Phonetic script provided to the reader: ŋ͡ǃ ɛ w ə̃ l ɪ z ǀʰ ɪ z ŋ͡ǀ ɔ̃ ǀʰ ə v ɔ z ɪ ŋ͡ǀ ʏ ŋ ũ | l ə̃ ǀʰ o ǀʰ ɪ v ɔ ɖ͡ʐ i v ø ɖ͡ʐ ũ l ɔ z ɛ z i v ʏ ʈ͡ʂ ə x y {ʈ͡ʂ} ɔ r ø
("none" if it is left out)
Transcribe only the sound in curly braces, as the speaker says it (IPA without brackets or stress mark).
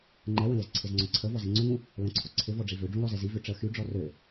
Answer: ɖ͡ʐ